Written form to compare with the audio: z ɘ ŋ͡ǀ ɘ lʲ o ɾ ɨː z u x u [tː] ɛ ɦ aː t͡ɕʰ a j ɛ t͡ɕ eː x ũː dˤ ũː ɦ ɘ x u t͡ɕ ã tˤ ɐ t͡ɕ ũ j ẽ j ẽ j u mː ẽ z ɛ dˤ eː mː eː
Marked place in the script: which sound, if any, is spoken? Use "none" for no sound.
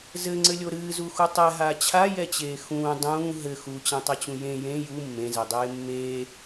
tˤ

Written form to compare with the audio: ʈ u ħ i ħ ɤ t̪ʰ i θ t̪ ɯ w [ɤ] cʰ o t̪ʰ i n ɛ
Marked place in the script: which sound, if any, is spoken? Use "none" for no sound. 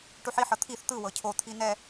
ɤ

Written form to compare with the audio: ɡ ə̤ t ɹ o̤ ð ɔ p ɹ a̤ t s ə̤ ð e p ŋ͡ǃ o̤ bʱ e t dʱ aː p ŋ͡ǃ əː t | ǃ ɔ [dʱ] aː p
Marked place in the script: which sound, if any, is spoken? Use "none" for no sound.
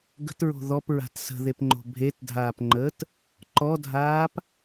dʱ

